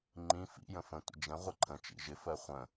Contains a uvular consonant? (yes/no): yes